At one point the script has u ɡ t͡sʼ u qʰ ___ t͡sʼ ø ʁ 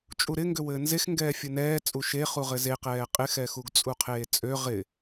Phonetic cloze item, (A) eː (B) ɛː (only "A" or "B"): A